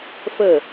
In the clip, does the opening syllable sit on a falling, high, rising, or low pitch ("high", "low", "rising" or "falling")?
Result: falling